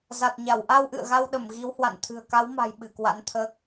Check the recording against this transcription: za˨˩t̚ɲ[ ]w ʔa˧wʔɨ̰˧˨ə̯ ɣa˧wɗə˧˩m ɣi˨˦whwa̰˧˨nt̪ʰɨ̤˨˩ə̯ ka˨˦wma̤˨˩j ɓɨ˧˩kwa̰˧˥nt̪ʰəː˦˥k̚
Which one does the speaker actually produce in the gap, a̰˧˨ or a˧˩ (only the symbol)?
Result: a˧˩